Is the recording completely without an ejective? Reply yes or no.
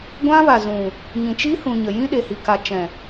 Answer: yes